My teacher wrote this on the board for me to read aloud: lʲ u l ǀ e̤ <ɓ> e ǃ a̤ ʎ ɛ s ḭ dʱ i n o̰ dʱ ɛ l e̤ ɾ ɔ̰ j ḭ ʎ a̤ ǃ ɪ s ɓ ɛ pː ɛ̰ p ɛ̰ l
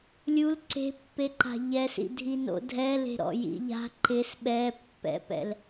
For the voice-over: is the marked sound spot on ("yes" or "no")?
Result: no